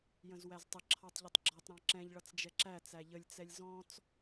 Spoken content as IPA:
j ə̃ z w æ z tˤ ə ǁʰ ɑ tˤ ʎ ʌ tˤ ɡ͡ǁ ɔ tˤ ɾ ɑ̃ ǁ ɛ̃ ʎ ɭ ʌ t͡s d͡ʒ ɛ ǁ æ t͡s æ ʎ ə lʲ t͡s ɛ lʲ z ɔ̃ t͡s

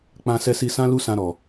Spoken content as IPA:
k͡p ã˧ s ɛ˧ s i˧ s ã˦ l u˦ s ã˧ ɾ ɔ˨

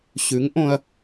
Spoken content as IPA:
ɕ ʉ˨˥ ŋ ʔ õ˧ ɐ̯

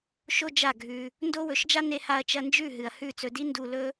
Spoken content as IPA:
ʃ o˦ d͡ʒ a˦˨ ɡʱ ʉ˧ | n d o˦ w ɵ˨˦ ʃ d͡ʒ a˦ n e˧ h a˧ ɐ̯ t͡ʃ ɐ˧ n d͡ʒ ʉ˦˨ ɦ ɨ˨ ɐ̯ h ʉ˦˨ t͡s ɵ˧ d i˦ n d u˧ l ɵ˦

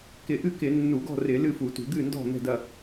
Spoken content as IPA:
k ɪ˧˩˧ ʔ ɨ˥˨ k ɪ˧˩˧ nː u˧˩˧ ɡ ɔ̤˥˨ r ɪ˧˩˧ l ɨ˥˨ f u˧˩˧ t ṳ˧˩˧ d̪ ɨ˥˨ n d ɔ̤˥˨ n̪ ɛ̤˥˨ d ɐ˥˨

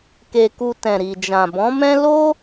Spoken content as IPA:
k e˧ k u˧ t ɛ̃˨ ɾ i˨ d͡ʒ ã˨ b ɔ̃˨˦ m ɛ̃˦ l o˦

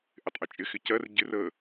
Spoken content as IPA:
ʔ ɪ tˤ ʔ ɪ t͡ʃʼ ɪ x ɪ c ɜ r ɟ ɪ r ə

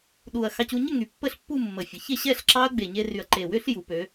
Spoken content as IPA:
ɗ u˨˩ ɐ̯ x ɑ˧ c u˧ ɲ ə˥˧ ŋ y˨˩ pː ə˥˧ ɬ pː u˥˧ mː ə˨˩ fʲ ə˩˧ ç e˥˧ ɕ ɛ˥˧ ɬ ǁ ɑ˦˥ ɐ̯ ɡ͡b e˨˩ ɲ e˧ r y˨˩ ɐ̯ ǃ e˨˩ w ʏ˦˥ ɬ j u˩˧ p ø˩˧

